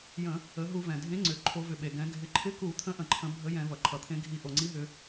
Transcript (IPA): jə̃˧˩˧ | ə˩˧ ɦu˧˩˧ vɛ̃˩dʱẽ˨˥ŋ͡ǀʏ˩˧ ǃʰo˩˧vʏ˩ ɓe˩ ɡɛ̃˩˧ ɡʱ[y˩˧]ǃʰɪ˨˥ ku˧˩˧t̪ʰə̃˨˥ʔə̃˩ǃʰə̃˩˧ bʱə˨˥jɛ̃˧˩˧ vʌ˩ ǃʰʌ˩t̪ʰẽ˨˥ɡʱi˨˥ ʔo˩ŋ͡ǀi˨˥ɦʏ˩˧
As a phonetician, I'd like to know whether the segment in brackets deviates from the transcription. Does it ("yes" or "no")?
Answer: yes